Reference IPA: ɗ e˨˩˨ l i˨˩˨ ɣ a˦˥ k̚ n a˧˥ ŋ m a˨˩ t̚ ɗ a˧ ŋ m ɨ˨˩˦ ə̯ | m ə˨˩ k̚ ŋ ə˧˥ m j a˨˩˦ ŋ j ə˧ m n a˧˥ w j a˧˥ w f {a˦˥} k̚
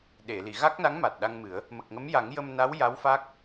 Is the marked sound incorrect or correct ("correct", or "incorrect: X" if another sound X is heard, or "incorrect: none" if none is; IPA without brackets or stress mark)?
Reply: correct